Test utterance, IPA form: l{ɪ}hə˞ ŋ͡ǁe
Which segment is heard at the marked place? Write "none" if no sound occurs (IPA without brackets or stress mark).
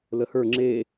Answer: ə